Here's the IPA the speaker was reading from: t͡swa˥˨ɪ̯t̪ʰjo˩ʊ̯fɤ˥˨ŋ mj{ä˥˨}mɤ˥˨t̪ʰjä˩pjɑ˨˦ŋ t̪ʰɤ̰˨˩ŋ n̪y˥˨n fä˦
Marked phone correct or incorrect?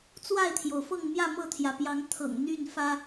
correct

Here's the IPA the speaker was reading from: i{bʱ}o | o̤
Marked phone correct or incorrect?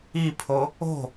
incorrect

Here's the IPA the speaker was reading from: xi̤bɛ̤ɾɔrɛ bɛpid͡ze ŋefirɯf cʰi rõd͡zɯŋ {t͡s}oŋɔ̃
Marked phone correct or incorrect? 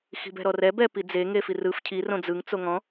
correct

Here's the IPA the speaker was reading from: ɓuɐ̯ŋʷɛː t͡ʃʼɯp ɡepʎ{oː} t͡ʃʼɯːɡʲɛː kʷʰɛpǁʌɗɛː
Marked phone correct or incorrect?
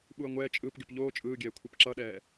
correct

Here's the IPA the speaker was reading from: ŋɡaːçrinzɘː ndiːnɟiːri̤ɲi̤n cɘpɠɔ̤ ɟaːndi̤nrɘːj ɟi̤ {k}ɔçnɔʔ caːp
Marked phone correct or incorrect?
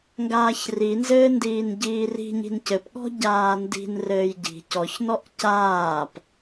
incorrect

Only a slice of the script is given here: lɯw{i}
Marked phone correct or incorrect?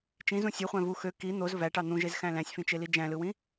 incorrect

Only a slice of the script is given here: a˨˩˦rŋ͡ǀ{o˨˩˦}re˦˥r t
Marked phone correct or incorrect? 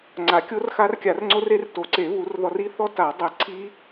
incorrect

